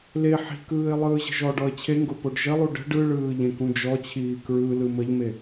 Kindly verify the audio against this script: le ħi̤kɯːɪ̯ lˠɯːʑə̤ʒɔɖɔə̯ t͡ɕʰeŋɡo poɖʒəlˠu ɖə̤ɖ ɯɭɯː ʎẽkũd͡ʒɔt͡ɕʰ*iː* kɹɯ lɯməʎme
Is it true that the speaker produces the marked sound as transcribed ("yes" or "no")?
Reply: yes